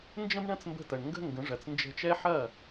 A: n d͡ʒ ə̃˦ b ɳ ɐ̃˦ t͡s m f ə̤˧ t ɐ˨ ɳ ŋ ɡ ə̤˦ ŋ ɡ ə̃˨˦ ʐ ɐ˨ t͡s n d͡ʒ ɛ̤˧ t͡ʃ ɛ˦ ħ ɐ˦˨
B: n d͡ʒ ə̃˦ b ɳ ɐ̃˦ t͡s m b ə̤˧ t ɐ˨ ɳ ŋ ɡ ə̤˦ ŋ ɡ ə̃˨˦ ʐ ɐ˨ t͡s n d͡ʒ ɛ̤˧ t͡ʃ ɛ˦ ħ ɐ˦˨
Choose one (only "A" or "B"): B